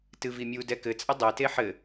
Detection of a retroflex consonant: absent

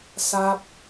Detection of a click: absent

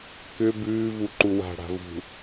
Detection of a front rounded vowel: present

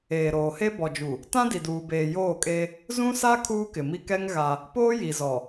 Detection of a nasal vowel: present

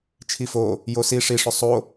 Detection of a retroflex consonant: present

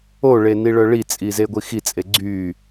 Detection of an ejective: present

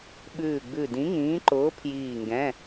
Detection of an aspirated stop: present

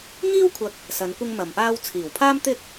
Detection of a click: absent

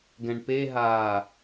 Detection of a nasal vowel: present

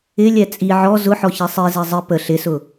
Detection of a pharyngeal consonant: present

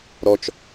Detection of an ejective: absent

